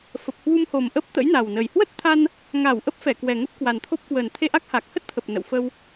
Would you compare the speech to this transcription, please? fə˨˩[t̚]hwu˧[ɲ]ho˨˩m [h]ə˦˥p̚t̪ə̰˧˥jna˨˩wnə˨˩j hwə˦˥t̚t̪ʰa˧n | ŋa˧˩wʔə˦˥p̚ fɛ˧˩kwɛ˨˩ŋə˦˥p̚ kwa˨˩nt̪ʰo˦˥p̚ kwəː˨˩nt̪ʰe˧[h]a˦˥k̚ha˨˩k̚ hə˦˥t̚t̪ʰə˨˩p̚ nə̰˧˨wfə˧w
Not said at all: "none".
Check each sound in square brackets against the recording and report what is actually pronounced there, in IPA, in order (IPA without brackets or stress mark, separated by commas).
p̚, m, ʔ, ʔ